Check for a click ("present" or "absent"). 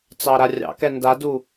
absent